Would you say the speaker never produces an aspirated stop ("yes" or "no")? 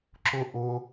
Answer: yes